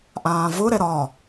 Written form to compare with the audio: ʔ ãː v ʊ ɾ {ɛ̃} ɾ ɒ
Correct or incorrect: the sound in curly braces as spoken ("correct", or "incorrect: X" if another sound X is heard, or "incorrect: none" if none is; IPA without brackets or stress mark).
incorrect: ɛ